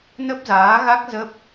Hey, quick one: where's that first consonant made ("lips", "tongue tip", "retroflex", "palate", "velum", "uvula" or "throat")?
tongue tip